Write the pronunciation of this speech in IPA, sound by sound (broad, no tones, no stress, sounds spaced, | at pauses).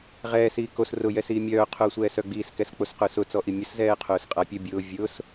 ʁ ɛː s iː k o s r ʊ j ɛ s iː mʲ œː qʰ ʊː sʷ ɛː s œ ɡ͡b iː s k ɛ s k͡p o s q ʊː s ʊ t͡s ɔ ʔ i mʲ ə s z ɛː qʰ ʊː s qʼ a pʲ ə bʲ ʊː vʲ ʊː s